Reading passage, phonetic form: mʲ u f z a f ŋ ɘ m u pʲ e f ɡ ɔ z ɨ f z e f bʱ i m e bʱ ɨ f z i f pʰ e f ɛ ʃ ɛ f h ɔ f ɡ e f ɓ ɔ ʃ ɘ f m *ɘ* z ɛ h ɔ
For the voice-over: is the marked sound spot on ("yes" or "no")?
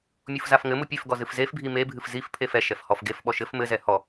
yes